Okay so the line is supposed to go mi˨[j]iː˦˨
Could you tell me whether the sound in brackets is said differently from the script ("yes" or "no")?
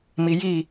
no